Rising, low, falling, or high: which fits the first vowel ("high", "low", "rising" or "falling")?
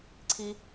high